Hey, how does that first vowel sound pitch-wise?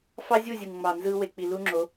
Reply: high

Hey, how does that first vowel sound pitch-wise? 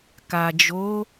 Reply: low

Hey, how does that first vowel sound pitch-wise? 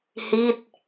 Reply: falling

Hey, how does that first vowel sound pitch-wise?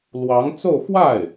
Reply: rising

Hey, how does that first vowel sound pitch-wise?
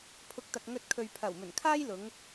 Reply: low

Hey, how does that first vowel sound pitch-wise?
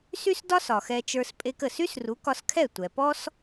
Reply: high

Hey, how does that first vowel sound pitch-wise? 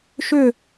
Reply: falling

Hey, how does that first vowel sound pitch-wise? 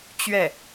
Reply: falling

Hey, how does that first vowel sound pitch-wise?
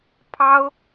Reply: high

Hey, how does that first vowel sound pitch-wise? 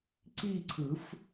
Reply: falling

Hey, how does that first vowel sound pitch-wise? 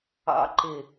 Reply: high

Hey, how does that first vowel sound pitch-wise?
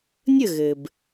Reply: falling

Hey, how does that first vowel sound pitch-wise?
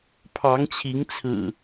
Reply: rising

